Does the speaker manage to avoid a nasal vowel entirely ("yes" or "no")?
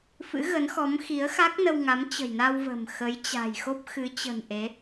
yes